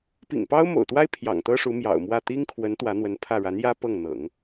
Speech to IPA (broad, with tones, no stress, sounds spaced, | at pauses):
p ḭ˨˩ ŋ p ɑ˥ ʊ̯ m o̰˨˩ ʊ̯ t̪ w a˥ ɪ̯ pʰ j ɑ̰˨˩ ŋ t̪ ɤ˥ ʂ u˧˥ m j ɑ̰˨˩ ʊ̯ m w ä˥˩ t̪ i˥ ŋ kʰ w ə˧˥ n t̪ w ä˧˥ n̪ w ə˧˥ n pʰ ä˥˩ ɻ a˧˥ n j ä˥ p ɤ˥˩ ŋ n̪ ɤ̰˨˩˦ ŋ